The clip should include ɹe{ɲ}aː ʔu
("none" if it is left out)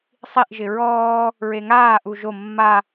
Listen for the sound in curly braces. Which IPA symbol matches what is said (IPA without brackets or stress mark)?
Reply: ŋ